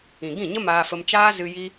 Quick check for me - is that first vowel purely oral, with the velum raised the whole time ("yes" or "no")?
no